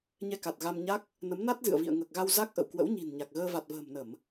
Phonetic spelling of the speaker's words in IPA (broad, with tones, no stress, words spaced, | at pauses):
ɲɛ˧ka˨˩t̚ ɣa˧mɲa˦˥k̚ | nə˨˦mna˦˥t̚zɨ̰˧˨ə̯ vḭ˧˨ə̯ŋəː˨˩k̚ɣa˧w za˦˥k̚ʔə̰˧˨w kwə̰˧˥wɲi̤˨˩nɲa˨˩k̚ɣəː˧ va˨˩t̚və̤ː˨˩mnə˧˩˨m